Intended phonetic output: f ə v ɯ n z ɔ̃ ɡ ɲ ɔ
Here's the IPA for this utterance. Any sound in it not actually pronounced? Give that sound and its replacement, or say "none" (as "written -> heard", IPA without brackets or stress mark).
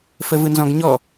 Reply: none